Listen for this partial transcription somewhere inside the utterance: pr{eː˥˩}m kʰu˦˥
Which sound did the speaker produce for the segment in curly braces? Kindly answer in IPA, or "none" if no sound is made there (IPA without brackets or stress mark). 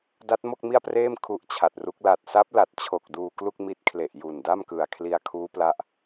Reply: eː˥˩